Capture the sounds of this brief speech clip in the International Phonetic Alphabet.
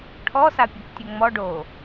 ʈʰ ɔ s a pʲ ɔ k tʲ o ŋ͡m ɔ ɖ o

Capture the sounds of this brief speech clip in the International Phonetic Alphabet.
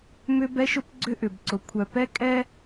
m ʏ˦ b ɛ˦ ʃ ʊ˦ p ɡ͡ǀ ʏ˦ ʔ ʏ˨ b ǀ ʊ˨ kʷʰ œ˨ p ɛ˦ kʼ ɛ˦

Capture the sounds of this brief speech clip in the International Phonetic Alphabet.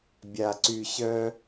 bʲ a˨ ǀ y˨ ɕ œ˦

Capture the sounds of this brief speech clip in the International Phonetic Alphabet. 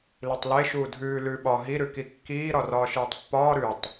l i tˤ l e ʃ uː dʱ ʉː l ʉ ɓ ɒ ɦ i ɾ ʉ k i kː iː ɾ ɒ r ɒː ʃ iː tˤ pː ɒː ɾ ʉ tˤ

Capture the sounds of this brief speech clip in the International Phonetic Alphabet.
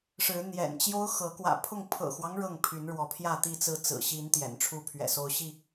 ʂ ɻ̩˨˦ n̪ j ɛ̰˨˩ n t͡ɕ j o˦ ʊ̯ x ɤ˨˦ k w ä̰˨˩ pʰ ʊ˥˨ ŋ pʰ ɤ̰˨˩ x w ɑ˦ ŋ ɻ ɤ˥˨ ŋ pʰ y˨˦ n ɻ w ɔ˨˦ pʰ j ä˥˨ t̪ i˥˨ t͡s ɹ̩˥˨ t͡s ɹ̩˨˩ ɕ i˨˦ n t̪ j ɛ̰˨˩ n ʈ͡ʂʰ u˥˨ pʰ ɥ ɛ̰˨˩ s o˦ ʊ̯ ɕ i˥˨

